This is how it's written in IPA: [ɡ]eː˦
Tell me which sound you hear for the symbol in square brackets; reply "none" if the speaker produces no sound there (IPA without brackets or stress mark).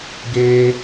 ɡ